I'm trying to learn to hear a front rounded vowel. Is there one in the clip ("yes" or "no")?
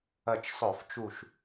yes